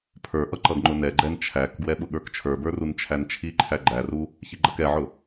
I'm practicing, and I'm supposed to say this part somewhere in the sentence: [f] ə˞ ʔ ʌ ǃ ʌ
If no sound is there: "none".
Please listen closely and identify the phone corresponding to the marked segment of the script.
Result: pʰ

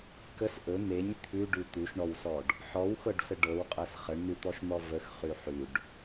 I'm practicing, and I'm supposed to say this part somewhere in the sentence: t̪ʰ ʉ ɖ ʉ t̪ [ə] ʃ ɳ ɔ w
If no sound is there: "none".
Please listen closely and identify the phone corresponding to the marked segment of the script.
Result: ʉ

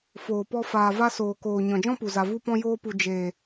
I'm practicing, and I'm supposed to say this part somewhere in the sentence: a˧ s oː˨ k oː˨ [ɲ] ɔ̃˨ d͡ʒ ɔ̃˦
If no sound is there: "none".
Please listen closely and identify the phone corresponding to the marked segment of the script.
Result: ɲ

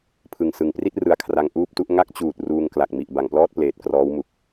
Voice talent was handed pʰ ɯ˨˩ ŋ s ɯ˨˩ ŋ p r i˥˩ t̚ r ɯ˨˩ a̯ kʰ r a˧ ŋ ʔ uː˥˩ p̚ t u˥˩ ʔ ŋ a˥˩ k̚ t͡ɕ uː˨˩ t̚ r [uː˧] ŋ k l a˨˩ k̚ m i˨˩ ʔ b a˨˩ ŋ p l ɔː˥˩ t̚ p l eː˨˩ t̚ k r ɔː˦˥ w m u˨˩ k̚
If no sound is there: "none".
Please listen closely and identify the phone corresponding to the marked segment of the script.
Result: uː˧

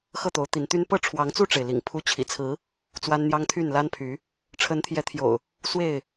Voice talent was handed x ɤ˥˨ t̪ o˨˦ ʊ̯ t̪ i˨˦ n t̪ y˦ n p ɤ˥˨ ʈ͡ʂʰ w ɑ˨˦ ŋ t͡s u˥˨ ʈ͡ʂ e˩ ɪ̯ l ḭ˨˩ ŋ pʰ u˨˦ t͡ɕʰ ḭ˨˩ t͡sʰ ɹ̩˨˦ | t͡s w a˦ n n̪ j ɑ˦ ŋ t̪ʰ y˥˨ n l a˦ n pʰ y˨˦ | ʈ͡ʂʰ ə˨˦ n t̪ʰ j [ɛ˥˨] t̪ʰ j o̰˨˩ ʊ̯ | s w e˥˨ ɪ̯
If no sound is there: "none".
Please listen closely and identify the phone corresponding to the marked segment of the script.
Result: ɛ˨˦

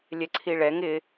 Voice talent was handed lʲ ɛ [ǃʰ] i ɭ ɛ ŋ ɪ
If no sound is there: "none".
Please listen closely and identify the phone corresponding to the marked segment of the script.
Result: ǀʰ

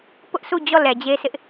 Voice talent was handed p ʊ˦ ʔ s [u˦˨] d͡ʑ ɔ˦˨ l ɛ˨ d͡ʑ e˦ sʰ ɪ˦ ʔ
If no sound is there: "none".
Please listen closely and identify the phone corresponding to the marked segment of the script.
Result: u˦˨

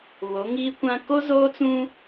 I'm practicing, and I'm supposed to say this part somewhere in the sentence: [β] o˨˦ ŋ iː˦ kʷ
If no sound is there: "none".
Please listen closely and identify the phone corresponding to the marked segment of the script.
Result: β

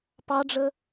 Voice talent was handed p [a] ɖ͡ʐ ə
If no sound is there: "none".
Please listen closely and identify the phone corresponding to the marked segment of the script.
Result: ɑ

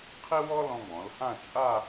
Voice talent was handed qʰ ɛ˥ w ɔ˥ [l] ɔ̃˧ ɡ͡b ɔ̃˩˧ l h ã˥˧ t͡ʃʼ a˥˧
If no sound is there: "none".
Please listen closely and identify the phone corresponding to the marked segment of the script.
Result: l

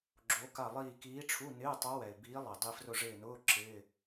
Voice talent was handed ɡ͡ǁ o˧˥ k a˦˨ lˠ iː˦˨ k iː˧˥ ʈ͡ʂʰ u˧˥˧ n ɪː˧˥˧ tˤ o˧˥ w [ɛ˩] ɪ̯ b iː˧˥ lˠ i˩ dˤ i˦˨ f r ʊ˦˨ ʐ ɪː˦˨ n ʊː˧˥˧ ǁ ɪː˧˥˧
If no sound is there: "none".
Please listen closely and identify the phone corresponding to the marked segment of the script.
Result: ɛ˩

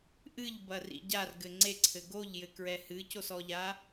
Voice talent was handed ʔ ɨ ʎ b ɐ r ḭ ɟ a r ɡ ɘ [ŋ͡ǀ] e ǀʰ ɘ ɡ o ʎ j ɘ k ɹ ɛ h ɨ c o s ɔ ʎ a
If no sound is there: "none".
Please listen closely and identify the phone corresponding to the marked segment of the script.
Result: ŋ͡ǀ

